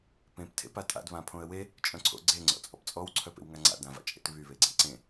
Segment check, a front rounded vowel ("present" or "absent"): present